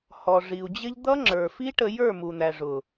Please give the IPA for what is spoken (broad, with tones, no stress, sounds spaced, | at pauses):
h ɔ˨ ʐ i˨ u̯ d͡ʑ ɪ˦ ʎ d̪ ʌ˦ ŋ͡ǁ ə˞˨ f i˦ ʈ ə˧ j ə˞˦˨ m u˨ n̪ æ˨ ʐ ʊ˨